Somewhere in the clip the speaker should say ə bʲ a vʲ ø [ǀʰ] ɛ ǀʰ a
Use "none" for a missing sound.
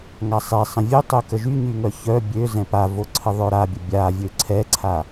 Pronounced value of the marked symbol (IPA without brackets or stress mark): ǀʰ